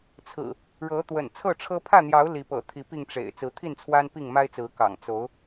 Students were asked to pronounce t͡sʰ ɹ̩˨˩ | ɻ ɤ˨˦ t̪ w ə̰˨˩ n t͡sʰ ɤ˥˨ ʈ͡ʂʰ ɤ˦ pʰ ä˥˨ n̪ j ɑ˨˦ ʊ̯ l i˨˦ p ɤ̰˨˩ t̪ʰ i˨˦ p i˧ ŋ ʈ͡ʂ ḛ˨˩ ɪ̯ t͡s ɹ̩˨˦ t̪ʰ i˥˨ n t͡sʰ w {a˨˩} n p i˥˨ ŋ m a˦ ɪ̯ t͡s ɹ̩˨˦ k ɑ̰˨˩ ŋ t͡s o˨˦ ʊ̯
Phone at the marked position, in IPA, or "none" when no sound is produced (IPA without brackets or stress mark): a˦